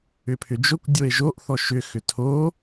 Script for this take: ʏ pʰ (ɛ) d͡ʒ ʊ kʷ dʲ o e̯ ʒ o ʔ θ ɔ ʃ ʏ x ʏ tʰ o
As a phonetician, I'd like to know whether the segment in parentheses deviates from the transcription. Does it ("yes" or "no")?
yes